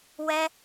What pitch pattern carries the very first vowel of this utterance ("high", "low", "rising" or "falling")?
high